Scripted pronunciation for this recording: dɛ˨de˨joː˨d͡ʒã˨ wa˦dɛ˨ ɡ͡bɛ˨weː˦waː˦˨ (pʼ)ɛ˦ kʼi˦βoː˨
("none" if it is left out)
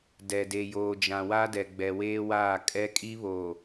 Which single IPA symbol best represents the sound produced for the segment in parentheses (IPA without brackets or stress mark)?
kʼ